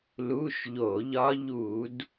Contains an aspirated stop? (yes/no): no